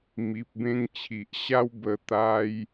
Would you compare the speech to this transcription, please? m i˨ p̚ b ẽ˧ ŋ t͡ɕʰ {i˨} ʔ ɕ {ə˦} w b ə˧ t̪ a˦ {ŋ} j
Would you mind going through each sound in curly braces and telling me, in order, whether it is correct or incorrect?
correct, incorrect: a˦, incorrect: none

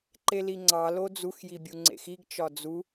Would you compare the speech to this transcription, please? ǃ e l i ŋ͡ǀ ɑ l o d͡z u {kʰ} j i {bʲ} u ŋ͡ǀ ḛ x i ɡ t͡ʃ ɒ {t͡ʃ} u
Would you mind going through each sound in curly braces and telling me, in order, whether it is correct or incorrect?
incorrect: x, correct, incorrect: d͡z

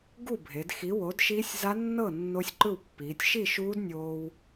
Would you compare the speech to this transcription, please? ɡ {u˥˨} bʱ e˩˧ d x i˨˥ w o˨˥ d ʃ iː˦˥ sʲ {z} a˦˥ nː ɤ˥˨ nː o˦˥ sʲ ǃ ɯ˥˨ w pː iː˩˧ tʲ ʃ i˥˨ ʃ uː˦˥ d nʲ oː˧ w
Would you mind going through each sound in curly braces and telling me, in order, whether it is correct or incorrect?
correct, correct

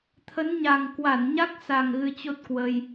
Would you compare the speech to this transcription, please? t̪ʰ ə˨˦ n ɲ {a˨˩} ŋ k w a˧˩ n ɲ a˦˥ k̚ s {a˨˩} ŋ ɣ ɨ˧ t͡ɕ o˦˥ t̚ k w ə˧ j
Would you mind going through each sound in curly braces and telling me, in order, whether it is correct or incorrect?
correct, correct

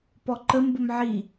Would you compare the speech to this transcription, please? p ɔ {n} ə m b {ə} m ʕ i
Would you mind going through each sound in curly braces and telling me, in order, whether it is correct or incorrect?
incorrect: ǃ, correct

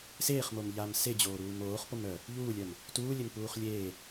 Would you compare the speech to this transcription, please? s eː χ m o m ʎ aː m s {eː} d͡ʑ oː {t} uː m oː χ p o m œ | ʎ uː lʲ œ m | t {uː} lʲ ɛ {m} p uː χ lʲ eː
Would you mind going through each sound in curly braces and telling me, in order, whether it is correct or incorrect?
incorrect: e, incorrect: ɾ, correct, correct

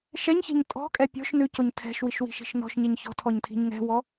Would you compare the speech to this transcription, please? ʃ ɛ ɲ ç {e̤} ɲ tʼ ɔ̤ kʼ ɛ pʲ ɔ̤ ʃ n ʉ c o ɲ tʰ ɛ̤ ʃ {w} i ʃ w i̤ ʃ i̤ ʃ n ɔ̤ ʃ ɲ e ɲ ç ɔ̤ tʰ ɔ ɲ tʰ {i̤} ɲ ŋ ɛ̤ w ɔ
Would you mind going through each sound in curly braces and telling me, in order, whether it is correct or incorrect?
correct, correct, correct

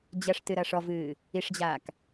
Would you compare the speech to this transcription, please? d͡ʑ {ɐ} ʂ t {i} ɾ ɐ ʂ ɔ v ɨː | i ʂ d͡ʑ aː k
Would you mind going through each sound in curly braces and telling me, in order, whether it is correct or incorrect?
correct, incorrect: ɨ

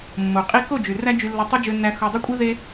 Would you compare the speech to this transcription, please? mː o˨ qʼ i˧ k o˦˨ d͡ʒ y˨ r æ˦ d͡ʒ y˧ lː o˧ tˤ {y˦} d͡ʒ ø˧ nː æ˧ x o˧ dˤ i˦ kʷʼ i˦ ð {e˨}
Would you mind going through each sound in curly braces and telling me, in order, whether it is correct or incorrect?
correct, incorrect: e˦

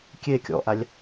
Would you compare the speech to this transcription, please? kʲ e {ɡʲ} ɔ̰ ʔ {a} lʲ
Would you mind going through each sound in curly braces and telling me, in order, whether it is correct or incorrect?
incorrect: kʲ, correct

